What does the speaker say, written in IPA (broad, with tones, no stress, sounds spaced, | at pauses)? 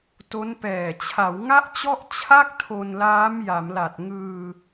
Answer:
t o˦˥ n p ɛː˨˩ t͡ɕʰ a˩˦ w ŋ a˥˩ ʔ t͡ɕ ɔ˥˩ ʔ t͡ɕʰ a˥˩ k̚ tʰ o˧ n l aː˦˥ m j a˩˦ m l a˨˩ t̚ ŋ ɯː˧